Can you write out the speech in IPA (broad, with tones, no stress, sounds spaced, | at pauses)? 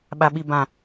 ɓ a˨ ɓ i˨ b ã˨